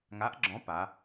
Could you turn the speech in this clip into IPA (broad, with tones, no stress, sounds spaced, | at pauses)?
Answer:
ŋ a˨˥ ʔ ɡ͡ǁ ɔ̃˨˥ p a˩˧